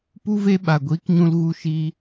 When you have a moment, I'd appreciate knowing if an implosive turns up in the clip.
yes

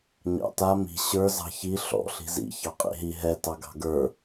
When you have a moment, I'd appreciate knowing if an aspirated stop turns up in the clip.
no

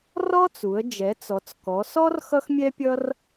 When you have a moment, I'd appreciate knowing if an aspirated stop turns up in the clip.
no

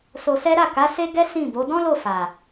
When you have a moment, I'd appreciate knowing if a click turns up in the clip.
no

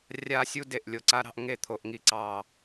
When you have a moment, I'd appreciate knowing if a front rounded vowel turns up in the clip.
no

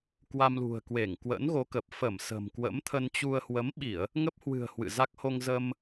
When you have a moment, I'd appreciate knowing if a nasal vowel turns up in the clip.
no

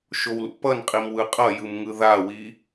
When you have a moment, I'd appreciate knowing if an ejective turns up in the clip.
yes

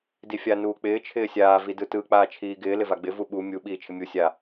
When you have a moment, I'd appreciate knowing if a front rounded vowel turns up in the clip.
no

